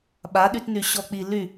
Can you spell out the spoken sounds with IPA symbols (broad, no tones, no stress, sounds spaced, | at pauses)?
ɓ a ɗ y t n y ɕ ɔ k͡p i l y